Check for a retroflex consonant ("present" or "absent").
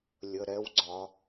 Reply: absent